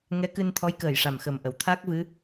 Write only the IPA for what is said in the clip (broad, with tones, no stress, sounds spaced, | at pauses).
ŋ ɛ˧˥ k ɨ˧ n t̪ʰ ɔ˧˥ j k əː˨˩ j ʂ a˨˩ m x ə˨˩ m ʔ ə˨˩˨ w t̪ʰ a˦˥ k̚ v ɨ˧˥